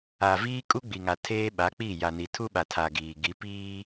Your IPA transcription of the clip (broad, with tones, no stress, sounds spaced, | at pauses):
a˨ v iː˦ kʼ u˦ ɡ͡b i˨ ŋ a˨ tʰ eː˦ ɓ a˨˦ k͡p i˦˨ j a˨ n i˨ tʰ u˦ ɓ a˨ tʰ a˨ ɡ iː˨ ɡ i˨˦ p iː˦